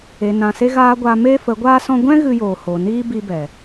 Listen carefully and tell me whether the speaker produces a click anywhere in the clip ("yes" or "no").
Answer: no